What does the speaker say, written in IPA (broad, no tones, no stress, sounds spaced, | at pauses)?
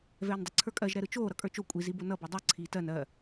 v ɛː n dˤ ʌ ǀʰ ə˞ kʼ ɜ ʒ ɾ ɛ ɾ ɯ t͡ʃ oː ɾ ʌ kʼ ə˞ t͡ʃ o kʷʼ i z i b o n ʌ b o dˤ ɯ ǀʰ iː t ɜ n ɜ